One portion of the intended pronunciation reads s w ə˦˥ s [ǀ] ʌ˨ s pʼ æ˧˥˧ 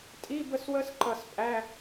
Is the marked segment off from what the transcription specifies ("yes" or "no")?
yes